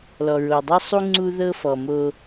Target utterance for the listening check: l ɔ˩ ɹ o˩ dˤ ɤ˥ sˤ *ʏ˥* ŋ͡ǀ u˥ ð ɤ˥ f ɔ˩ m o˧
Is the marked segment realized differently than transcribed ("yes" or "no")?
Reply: yes